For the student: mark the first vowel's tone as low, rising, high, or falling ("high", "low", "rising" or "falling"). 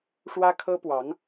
high